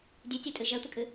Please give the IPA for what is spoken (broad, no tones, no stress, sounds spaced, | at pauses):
dʲ ʉ tʲ ɛ tʼ ɨ ʒ ɛ tʷ ə kʼ ɨ